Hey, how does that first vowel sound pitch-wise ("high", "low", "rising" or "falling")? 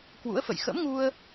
rising